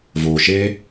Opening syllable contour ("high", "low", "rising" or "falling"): low